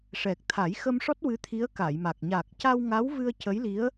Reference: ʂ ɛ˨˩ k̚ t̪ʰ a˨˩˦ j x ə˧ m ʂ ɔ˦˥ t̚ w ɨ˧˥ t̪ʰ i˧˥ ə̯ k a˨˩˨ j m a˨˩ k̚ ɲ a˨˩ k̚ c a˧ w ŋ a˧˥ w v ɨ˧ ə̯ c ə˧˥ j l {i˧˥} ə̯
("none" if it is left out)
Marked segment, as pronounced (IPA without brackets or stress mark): i˧˥